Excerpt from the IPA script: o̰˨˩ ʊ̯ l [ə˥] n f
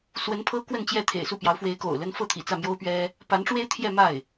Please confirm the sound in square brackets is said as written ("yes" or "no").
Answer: yes